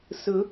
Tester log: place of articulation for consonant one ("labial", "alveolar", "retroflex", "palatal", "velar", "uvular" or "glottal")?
alveolar